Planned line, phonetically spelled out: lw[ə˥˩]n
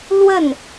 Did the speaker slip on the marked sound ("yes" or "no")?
no